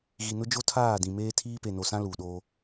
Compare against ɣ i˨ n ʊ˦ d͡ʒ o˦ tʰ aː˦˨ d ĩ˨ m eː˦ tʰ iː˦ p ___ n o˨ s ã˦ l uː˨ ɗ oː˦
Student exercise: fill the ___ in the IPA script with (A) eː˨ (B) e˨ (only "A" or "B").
B